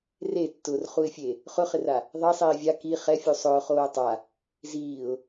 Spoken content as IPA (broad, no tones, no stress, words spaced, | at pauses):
retːʊːrχuɪ̯fʲe | χʊχɪra | ðˤesˤiː vʲa ki χɛfʲu sˤʊːχoː tˤa | ziːʊ̯